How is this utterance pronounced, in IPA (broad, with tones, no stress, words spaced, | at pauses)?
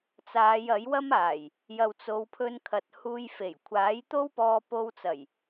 t͡saː˨˧jɐ˨˥jwɐ˥maː˨˩j | jɐ˨wt͡so˨˧wpʰɵ˧nkʰɐ˨t̚ huː˧jfe˨˩j kʷʰaː˨˥jt̪o˥wpɔː˧ po˧wt͡sɐ˨˩j